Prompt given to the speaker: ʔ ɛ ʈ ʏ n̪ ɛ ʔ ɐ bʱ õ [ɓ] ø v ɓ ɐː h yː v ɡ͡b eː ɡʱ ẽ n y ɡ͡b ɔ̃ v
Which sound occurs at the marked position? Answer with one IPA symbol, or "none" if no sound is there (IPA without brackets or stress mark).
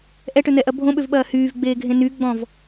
ɓ